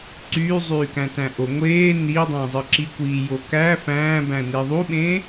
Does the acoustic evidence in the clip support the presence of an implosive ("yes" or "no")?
yes